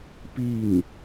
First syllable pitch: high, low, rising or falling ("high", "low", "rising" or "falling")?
falling